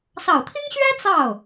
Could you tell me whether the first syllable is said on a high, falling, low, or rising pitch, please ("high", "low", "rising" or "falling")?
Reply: low